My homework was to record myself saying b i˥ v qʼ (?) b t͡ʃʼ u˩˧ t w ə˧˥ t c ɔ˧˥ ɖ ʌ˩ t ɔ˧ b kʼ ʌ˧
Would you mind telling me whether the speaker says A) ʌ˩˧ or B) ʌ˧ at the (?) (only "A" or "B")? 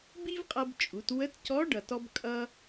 B